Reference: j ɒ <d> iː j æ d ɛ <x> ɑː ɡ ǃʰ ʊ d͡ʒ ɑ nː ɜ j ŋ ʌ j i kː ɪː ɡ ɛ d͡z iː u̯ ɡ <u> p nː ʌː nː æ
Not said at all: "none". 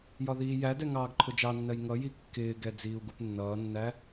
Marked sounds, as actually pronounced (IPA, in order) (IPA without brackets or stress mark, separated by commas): ð, ŋ, u